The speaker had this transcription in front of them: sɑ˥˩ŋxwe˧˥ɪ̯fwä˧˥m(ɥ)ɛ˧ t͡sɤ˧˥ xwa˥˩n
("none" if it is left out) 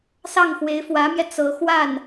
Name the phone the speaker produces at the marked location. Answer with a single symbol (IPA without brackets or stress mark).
j